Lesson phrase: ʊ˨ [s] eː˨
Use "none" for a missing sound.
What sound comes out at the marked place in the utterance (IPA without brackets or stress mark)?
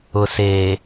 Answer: s